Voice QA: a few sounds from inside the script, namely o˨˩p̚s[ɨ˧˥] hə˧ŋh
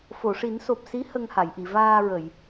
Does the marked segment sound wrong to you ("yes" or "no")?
yes